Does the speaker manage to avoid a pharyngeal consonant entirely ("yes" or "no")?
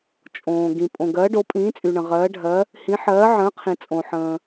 no